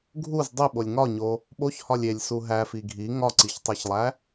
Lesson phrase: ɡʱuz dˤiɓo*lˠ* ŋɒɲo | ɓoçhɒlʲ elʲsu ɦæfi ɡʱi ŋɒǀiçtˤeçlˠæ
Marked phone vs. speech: incorrect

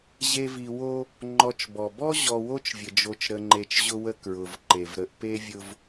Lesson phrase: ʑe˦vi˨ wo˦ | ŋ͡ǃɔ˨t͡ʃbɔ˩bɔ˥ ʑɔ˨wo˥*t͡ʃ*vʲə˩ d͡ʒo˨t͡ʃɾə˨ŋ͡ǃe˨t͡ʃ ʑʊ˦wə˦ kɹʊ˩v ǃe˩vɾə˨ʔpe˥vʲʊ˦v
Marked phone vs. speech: correct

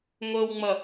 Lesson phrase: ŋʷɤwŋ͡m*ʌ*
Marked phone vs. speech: correct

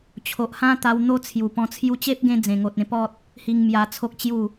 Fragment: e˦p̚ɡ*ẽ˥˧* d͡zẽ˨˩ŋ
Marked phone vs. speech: incorrect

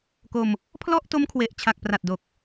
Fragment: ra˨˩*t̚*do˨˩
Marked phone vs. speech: correct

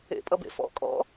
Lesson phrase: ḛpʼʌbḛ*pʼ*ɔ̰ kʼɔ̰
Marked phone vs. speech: incorrect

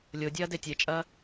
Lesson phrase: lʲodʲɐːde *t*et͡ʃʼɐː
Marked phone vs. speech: incorrect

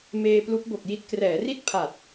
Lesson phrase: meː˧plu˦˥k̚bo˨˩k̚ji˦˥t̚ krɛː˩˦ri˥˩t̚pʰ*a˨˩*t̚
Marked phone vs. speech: correct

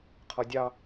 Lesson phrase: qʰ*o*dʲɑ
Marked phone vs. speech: incorrect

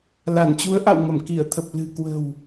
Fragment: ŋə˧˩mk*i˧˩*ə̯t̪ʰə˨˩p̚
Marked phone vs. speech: correct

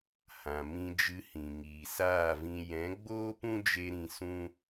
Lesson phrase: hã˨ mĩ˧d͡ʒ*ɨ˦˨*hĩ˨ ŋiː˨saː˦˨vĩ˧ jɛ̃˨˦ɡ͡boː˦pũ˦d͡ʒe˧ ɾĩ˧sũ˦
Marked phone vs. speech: incorrect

